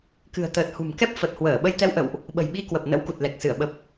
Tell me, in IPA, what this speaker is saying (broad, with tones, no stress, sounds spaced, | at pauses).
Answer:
k ɨ̤˨˩ ə̯ t̪ əː˨˩ t̚ h ṳ˨˩ m k ɛ˦˥ p̚ f ə˨˩ t̚ h w əː˧˩ ɓ ə˧ j t̪ ɛ˧ w ʔ ə̰˧˨ w ʔ | ɓ ə̤˨˩ j ɓ i˧ k w ə˨˩ p̚ n ə̰˧˥ w k u˨˩ t̚ l ɛ˨˩ k̚ s ɨ˧˩ ə̯ ɓ ə˨˩ p̚